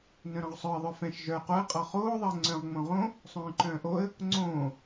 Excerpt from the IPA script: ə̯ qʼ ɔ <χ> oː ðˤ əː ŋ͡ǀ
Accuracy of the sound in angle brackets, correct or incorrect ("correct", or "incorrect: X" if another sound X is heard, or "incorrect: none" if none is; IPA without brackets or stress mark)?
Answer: correct